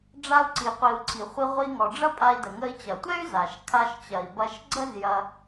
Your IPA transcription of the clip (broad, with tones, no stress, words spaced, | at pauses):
ɖ͡ʐa˧u̯ǀi˩qʷi˩u̯ ǀʰi˩χʷi˧ ʁʷi˧ŋɔ˩ɖ͡ʐɐ˥ pʼa˧i̯də˩ŋə˧i̯ t͡ɕɐ˩tʷɛ˥y̯ za˩ʃ kʰa˧ʃt͡ɕɐ˩i̯bɐ˧ʃ ɡ͡ǀə˥zjɐ˧